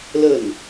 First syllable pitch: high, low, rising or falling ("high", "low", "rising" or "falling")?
falling